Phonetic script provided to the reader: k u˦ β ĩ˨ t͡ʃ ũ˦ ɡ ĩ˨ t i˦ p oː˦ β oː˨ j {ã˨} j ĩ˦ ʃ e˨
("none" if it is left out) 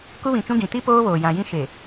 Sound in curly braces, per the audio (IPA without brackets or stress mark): ã˨